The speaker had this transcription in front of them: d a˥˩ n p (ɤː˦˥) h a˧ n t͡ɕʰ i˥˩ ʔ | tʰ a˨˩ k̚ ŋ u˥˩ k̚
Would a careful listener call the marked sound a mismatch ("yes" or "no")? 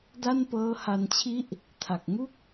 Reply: no